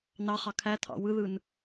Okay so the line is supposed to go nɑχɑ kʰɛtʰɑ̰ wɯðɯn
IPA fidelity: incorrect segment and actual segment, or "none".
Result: ɛ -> æ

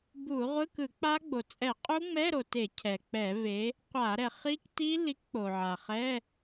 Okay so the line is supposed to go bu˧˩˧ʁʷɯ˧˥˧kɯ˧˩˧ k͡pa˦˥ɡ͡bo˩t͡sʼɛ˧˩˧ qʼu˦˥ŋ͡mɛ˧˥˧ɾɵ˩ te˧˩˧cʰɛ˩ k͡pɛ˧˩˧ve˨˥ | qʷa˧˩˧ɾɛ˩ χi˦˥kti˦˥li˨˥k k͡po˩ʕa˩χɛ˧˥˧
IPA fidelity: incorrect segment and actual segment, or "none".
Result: ɵ˩ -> o˩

